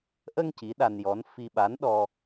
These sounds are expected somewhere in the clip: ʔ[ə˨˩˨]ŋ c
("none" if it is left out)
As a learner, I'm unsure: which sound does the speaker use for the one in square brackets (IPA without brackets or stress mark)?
ə˧